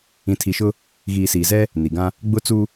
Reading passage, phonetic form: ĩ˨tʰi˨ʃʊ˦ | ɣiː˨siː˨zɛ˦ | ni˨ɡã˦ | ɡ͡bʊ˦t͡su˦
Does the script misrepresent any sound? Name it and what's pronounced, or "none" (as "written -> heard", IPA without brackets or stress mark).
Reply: none